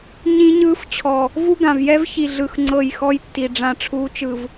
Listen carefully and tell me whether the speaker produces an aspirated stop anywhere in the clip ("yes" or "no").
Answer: yes